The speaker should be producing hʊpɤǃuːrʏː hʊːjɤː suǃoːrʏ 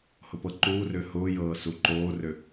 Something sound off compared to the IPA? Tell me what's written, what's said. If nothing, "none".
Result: none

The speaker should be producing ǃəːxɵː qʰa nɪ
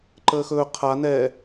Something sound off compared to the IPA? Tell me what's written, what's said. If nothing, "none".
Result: ɪ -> ɛ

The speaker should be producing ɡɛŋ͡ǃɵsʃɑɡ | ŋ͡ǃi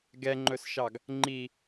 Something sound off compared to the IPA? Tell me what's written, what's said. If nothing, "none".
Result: none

